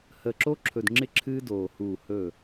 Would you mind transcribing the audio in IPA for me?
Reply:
h əː˨ ǁ o˦ ǁʰ ɵ˨ d ŋ͡ǁ ɪ˦ ǁʰ ɨː˦ d oː˨ h uː˦˨ h ɵ˦˨

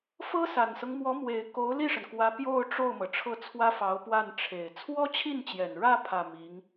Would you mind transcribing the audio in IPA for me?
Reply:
f ɤ˥ s a˨˩ n s ɤ˦ ŋ m w ɔ˧˥ m w e˨˩ ɪ̯ k o˧˥ ʊ̯ l i˥˩ ʂ ə˩ n k w ä˧˥ p j o˥˧ ʊ̯ ʈ͡ʂ o˥˩ ʊ̯ m ɤ˩ ʈ͡ʂʰ ɤ˥˩ t͡sʰ w ä˥ f ɑ˧˥ ʊ̯ p w a˥˩ n ʈ͡ʂʰ e˨˩ ɪ̯ t͡sʰ w ɔ˥ t͡ɕʰ i˥˩ n t͡ɕ j ɛ˨˩ n ɻ ä˥˧ pʰ ä˥˩ m i˧˥ ŋ

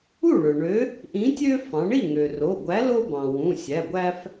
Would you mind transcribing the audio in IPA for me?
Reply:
u˥˩ ɭ ø˩ ɳ ø˨˥ | ʔ ĩ˨˥ tʲ ø˦ f ɑ̃˩˧ ɳ i˥˩ ŋ ø˩ r o˩˧˩ ɡʷ æ˨˥ l o˦ b ɑ̃˩ w ũ˩˧˩ sʲ æ˩˧˩ ɡʷ æ˦ f

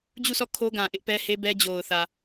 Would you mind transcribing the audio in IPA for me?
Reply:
d͡ʑ u˦˨ sʰ ɔ˦˨ kʰ o˦ ɡ ã˨ ʔ ɪ˦ ʔ p ɛ˦ h e˦ b ɛ˦ d͡ʑ o˨ ʊ̯ θ ä˨

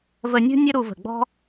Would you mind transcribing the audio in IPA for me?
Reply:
v ə˧ nʲ ṳ˥ nʲ ə˥ ɾ u˧ v ə̤˧˩ ɡ͡b ɔ̤˥

